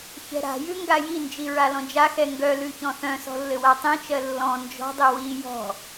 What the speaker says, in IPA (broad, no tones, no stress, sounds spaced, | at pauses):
ç ɛ̤ ɾ a̤ j ʉ ŋ ɡ a j i n d͡ʒ i ɹ a l ɔ̃ d͡ʒ a x ɛ ŋ ɡ œ l ʉ ç ɔ̃ θ œ̃ s ɔ̤ lː ɘ w a tˤ ĩ t͡ʃ ɜ lː ɔ̃ n d͡ʒ ɔ̤ dˤ ɘ w i j ɔ̤